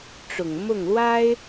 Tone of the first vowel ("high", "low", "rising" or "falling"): low